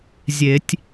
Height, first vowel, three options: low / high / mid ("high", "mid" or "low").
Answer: mid